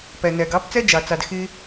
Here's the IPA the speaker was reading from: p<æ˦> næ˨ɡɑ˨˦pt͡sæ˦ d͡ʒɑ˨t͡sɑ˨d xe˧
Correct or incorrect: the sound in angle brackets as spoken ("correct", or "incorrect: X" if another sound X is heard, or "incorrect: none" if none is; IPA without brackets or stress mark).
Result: incorrect: æ˨